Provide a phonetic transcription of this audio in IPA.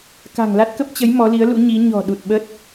k a̤˨˩ ŋ l a˦˥ t̚ k ə˦˥ p̚ t͡ɕ ə˨˦ j m ɔ˨˦ l i˨˦ ə̯ l ṵ˧˥ ɲ i˨˦ ɲ ɔ̤˨˩ ɗ u˨˩ t̚ ɓ ə˦˥ t̚

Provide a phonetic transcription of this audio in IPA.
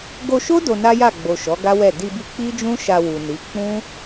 ɡ o˧ ʃ o˦ d o˧ n a˦ j a˦˨ ɡ͡b o˨ ʃ ɔ˨˦ ɡ a˦ w ɛ˦˨ d i˧ b i˧ k͡p i˦ d͡ʒ ũ˦ ʃ a˧ w u˨ n i˨˦ k͡p ũ˦

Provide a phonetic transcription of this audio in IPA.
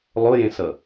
lˠ o j ẽ s ʌ

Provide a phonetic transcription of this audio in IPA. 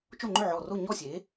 t͡ʃ o˥˨ ŋ͡ǃ ʏ˥˨ ʕ ɔ˧˩ r o˥˨ ɲ ɔ˥˨ sʲ e˩˥

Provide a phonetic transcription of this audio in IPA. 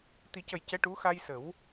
t̪ i˨˩˦ c ə˨˩ j c ɛ˧˥ ʈ u˧˥ x a˧ j s ə˨˩˦ w

